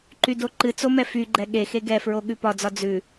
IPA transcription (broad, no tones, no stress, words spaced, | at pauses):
ǃydoǃɨt͡so mɛfyɡ͡ǃɛ ɠexe ɡɛfɹo ɠʉpɒd͡zɒ d͡zʉ